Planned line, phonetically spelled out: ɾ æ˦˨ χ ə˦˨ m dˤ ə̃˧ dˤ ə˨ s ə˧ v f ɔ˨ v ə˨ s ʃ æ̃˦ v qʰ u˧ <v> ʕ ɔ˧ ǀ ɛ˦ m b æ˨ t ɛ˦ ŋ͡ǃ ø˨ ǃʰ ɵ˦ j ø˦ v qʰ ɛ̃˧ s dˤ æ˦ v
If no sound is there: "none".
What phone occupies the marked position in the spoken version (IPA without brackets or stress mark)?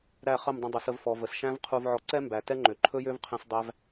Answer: v